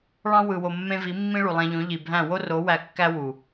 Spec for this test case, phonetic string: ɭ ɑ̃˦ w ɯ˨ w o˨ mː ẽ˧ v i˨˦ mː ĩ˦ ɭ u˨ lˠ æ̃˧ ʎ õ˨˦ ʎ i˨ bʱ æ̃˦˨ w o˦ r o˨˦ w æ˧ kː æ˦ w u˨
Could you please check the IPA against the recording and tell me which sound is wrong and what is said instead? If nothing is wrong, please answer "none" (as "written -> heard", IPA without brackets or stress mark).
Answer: none